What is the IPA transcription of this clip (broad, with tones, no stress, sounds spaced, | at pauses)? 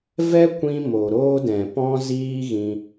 v ɛ˦ kʷ ĩ˧ m o˨ ɾ oː˧ d ɛ̃˨ p ɔ̃˦ z iː˦ ɣ ĩ˧